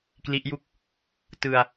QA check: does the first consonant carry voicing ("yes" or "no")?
no